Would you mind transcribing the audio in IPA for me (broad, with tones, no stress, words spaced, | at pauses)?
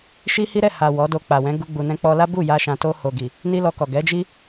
ʃi˦hi˦ ɾɛ˦˨ha˨ wɔ˨˦do˧k͡pa˨ wɛ̃˨˦ ɡu˦ɡ͡bu˧nɛ̃˦ k͡pɔ˧la˦bu˦˨ ja˧ʃã˨to˧ ho˨ɡi˨ | ni˦lɔ˧kɔ˨ ɡɛ˨˦d͡ʒi˦